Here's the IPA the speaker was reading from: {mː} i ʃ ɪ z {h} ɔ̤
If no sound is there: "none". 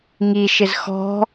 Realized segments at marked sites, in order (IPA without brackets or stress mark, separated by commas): ŋ, x